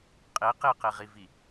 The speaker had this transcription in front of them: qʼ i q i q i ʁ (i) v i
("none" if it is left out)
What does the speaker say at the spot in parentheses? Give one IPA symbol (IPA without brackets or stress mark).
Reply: i